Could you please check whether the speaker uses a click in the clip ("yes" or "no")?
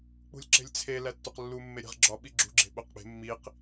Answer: yes